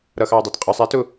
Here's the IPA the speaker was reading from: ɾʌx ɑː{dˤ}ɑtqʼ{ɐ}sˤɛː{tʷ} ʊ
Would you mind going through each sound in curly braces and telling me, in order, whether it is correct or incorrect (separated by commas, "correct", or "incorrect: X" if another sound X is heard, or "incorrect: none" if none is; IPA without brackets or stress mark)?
correct, incorrect: ə˞, incorrect: t